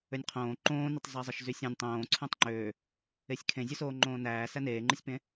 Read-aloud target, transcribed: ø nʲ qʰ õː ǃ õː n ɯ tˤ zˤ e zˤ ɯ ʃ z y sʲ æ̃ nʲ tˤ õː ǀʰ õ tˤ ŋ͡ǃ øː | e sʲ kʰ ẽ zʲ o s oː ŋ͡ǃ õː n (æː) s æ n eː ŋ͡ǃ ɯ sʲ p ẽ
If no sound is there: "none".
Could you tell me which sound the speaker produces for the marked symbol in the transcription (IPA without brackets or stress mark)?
æː